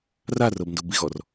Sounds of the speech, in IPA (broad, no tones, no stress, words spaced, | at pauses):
rarɤb ndobiɣɔr